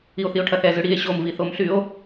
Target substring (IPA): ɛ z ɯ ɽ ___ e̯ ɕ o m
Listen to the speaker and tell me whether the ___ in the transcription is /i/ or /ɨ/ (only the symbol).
i